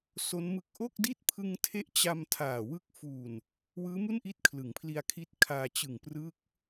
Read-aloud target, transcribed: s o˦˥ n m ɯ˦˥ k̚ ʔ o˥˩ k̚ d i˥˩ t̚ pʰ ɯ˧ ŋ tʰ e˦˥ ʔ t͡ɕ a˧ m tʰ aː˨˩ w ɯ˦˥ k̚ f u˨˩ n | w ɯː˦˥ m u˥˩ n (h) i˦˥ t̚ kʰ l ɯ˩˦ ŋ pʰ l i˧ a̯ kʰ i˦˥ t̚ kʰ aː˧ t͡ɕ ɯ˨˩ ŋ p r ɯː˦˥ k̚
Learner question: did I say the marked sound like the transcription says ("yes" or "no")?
no